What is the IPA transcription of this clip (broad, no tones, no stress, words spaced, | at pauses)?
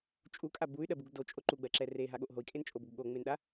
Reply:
t͡ʃʼukʼa buy̯ɗɜbuɡ dot͡ʃʼo ǃuɡ͡bɜǁɛ reɦaɠoʔ ɦoi̯kʼent͡ʃʼoboɡ ɠoŋ͡menɗa